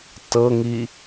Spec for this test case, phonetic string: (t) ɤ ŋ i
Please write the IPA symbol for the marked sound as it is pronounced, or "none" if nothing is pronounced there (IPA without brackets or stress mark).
t